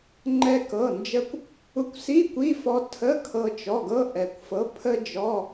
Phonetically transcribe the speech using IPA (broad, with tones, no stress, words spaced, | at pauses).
ŋ͡ǃɛ˧kɤ˩˧˩nd͡ʒə˧kʷ | u˧kʷsi˧˥˧ kʷi˧˥˧fɔ˧ tʰə˧˥˧ kʰɤ˧t͡ʃɔ˩˧˩ɡɤ˧˥˧ ʔɛ˩kʷfɤ˩˥pʰə˧d͡ʒɔ˩˧˩